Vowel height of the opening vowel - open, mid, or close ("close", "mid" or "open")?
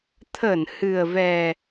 mid